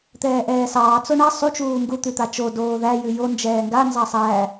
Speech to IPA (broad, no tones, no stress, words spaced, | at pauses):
t̪ɛːʔɛːsɑː t͡soɳa sˤu t͡ʃuːŋɡu t̪ʉt̪at͡ʃo doːðæ jʉjo nd͡ʒɛːŋɡa nzɑsˤæ